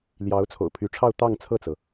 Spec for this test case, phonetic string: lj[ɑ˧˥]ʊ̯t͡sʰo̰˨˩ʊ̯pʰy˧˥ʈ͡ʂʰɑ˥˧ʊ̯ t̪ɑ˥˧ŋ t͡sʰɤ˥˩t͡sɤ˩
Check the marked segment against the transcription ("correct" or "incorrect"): correct